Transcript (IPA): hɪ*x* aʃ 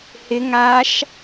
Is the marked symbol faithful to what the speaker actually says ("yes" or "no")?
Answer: no